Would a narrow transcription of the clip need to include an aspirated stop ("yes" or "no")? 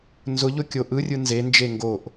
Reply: no